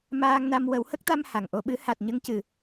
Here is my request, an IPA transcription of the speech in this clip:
m aː˧ ŋ n a˧ m w ə˨˩˦ w h ə˦˥ k̚ t̪ a˧ m h a˨˩ ŋ ʔ o˧ ɓ ɨ˧˥ h a˨˩ t̚ ɲ ə˧ ŋ c ɨ˨˩

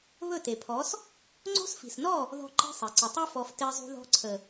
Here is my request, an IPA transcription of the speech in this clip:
β ɵ˦˨ t e˨ pʰ ɔ˨˦ s | ŋ͡ǀ o̤˦ s f i̤˨ s n ɔ˦˨ | ð ɔ̤˦ ǃ i̤˦ sˤ i˨ ǀ ə˨ tˤ u˦ f ɔ˧ f t e˧ zˤ ṳ˧ ð ɔ̤˧ ǀʰ ə˨

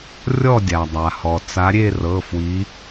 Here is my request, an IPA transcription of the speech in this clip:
rʲ ɔ˥˧ dʲ a˩ dˤ a˩ h ɔ˩ t͡s a˨˦ ɾʲ e˥˧ r ɤ˩˧˩ f w i˨˦

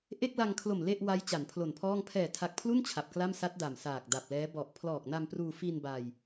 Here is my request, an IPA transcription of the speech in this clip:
ʔ e˥˩ k̚ l a˧ ŋ kʰ l o˨˩ m l e˥˩ ʔ w a˦˥ j t͡ɕ a˩˦ n pʰ l o˨˩ n pʰ ɔː˥˩ ŋ pʰ ɛː˨˩ tʰ a˨˩ k̚ pʰ l u˥˩ n t͡ɕʰ a˨˩ p̚ k l a˥˩ m s a˦˥ t̚ d a˨˩ m s aː˨˩ k̚ d a˨˩ p̚ l ɛː˦˥ b ɔ˨˩ ʔ pʰ l ɔː˨˩ k̚ n a˧ m p r uː˧ f i˧ n b a˧ j

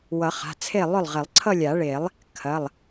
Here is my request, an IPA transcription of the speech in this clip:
w ʌ˨˩˦ χ a̤˩˧˩ t͡sʰ e˥˩ lˠ ʏ˥˩ lˠ ʁ e˨˩˦ lˠ ǀʰ ʌ˥˧ lʲ a˨˩˦ ɭ e˨˩˦ lˠ | kʰ ɐ˩˧˩ lˠ

